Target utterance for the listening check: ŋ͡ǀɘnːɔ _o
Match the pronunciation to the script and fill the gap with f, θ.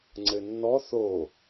θ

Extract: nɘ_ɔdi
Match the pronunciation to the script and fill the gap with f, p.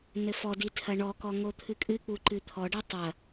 f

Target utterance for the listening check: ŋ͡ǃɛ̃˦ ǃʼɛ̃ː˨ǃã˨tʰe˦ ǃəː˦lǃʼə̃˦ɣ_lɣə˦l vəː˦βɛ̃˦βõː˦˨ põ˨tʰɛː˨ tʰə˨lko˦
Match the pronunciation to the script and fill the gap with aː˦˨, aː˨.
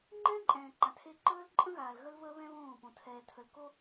aː˨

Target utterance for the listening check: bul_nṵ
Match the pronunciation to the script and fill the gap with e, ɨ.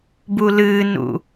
ɨ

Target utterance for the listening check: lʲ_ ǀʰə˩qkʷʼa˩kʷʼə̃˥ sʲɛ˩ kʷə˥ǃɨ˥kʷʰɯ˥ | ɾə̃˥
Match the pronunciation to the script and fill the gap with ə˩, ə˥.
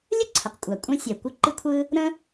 ə˥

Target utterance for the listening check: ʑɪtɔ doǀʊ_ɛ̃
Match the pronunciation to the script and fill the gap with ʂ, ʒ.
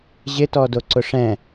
ʂ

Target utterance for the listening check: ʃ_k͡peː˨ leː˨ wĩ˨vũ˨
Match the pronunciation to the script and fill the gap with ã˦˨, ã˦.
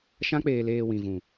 ã˦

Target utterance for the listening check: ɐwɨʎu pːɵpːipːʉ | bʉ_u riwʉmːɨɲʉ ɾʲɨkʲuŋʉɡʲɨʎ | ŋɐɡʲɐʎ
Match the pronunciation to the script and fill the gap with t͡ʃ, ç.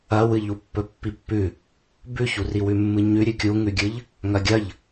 ç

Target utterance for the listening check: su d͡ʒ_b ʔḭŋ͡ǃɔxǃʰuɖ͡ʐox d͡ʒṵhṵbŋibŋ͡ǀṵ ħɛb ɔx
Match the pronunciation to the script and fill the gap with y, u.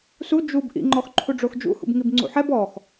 u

